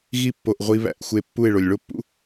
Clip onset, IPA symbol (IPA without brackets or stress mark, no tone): ɣ